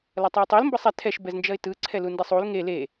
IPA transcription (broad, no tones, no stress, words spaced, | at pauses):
lʌtˤʌɪ̯tˤil mbʌsˤɛ tʰɛʃ bɛznd͡ʒʌɪ̯tɯ ǀʰɛlundisˤul ŋe le